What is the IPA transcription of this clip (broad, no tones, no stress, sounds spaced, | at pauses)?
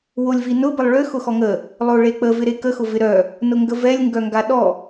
w o lʲ v i n ʊ b ə lˠ ɭ ʏ x ʊ x ɔ ŋ ə | lˠ o ɭ e k͡p ə v ɪ ɾ e k ə x ʊ v ɪ ɾ œ | n ʊ ŋ ɡ ə v ɛ lʲ ŋ ɡ œ ŋ ɡ a ɗ ɔ